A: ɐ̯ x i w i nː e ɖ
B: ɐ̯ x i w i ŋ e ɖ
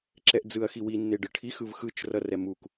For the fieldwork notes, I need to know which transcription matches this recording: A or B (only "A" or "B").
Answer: A